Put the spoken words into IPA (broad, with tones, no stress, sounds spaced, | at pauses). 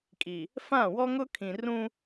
kʼ i˨ | f ã˦˨ w ɔ˦ ŋ ʊ˦ kʰ ĩ˨ r ũ˦